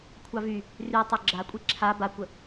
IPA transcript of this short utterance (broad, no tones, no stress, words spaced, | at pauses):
kʷʰɑvy | ry tˤoɡ͡ǁakʷʼi ǁʰa bakʷə